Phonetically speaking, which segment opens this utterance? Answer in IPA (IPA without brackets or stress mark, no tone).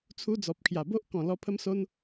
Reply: t͡sʰ